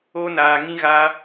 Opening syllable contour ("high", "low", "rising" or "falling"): high